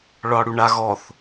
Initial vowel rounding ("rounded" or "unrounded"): rounded